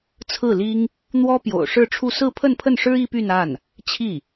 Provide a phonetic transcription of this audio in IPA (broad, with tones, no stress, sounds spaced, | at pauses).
t͡sʰ ɹ̩˥˩ l i˥ ŋ | n̪ w ɔ˥ p j o̰˨˩ ʊ̯ ʂ ɻ̩˥˧ ʈ͡ʂʰ u˥˧ s ɹ̩˥˧ pʰ ə˥˧ n pʰ ə˥˩ n ʂ ɻ̩˥ i˥ p y˥˧ n a˥˩ n | t͡ɕʰ i˥˩